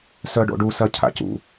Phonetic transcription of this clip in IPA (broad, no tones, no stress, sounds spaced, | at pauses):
s œ ɖ o̰ ɖ u s ɐ cʰ a̰ c ṵ